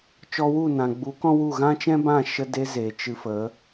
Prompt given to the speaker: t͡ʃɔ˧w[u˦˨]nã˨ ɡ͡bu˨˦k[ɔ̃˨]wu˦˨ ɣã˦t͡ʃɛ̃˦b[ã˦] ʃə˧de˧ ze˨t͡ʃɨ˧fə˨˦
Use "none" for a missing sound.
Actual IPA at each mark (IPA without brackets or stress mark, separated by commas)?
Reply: u˦˨, ɔ̃˦, ã˦˨